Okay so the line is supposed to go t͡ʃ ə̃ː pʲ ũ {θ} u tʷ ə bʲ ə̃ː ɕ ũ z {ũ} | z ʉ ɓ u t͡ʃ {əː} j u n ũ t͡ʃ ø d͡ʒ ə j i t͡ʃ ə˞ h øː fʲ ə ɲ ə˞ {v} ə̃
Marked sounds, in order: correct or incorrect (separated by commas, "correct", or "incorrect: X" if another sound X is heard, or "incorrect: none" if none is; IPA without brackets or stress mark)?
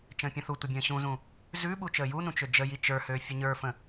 correct, correct, correct, incorrect: f